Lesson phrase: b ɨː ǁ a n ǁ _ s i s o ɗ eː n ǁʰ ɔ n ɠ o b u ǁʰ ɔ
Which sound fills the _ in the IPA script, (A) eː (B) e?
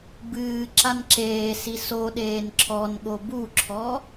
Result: A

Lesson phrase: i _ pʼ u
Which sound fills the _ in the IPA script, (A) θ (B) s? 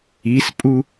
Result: B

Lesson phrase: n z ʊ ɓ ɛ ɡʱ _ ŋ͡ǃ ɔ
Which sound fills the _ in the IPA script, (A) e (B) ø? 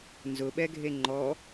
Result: A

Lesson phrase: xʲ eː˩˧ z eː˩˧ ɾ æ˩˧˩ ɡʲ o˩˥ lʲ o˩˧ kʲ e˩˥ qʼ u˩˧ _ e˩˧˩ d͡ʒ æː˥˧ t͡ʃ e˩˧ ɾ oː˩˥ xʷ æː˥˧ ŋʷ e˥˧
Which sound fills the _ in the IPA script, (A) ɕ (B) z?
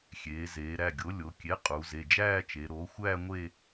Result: B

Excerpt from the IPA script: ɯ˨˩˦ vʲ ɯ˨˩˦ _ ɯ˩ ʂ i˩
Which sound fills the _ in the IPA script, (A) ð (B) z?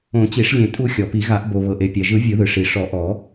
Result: A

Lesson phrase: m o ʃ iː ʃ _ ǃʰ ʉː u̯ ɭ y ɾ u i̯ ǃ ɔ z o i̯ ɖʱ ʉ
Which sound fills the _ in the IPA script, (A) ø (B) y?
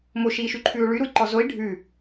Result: B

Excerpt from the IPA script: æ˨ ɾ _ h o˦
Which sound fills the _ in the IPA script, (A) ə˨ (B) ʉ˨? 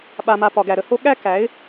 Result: A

